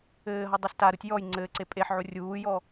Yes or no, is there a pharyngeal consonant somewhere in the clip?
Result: yes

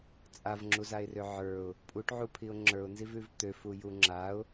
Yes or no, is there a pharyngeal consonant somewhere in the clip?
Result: yes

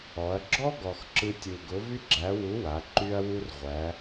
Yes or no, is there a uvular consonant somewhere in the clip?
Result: yes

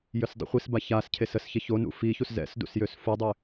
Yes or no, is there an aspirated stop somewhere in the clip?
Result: yes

